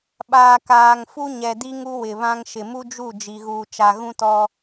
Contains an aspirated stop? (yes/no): no